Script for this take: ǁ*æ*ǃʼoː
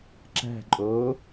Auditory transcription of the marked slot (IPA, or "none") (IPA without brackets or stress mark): æ̤